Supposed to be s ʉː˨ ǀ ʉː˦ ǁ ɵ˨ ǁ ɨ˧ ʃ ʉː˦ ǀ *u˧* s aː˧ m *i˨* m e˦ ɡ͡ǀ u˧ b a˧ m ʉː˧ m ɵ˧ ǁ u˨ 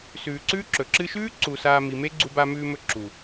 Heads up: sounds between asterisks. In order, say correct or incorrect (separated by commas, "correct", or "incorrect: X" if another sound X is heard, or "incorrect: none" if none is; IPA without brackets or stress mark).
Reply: incorrect: u˨, correct